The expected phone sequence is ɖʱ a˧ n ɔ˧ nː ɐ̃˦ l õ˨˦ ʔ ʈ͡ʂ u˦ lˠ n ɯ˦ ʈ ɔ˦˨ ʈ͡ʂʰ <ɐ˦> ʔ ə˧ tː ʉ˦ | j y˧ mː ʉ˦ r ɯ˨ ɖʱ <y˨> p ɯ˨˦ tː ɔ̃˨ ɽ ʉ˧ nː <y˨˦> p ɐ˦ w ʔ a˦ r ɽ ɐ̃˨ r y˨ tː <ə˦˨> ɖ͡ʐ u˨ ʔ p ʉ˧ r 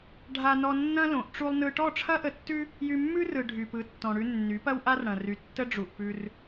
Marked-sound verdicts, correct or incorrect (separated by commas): correct, correct, correct, incorrect